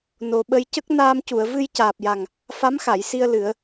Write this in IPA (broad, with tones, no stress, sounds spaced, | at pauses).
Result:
n o˨˩ ɓ ə˧ j c ə˦˥ k̚ n aː˧ m c u˨˩˨ ə̯ v ɨ˧ j c aː˨˩ p̚ j a˨˩ ŋ | f a˧˥ m x a˨˩˨ j s i˧ ə̯ l ɨ˨˩˦ ə̯